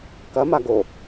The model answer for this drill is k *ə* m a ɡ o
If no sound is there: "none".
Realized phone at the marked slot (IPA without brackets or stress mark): ɐ